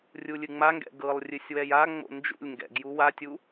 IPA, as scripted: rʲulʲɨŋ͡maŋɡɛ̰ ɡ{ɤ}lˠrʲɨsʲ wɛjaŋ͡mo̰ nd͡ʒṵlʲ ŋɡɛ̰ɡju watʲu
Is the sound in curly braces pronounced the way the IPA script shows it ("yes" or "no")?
yes